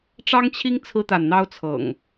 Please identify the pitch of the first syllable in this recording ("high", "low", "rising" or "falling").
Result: high